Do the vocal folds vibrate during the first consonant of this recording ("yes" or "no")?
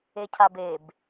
no